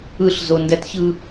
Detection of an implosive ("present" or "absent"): absent